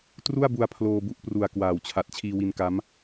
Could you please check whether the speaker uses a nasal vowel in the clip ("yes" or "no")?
no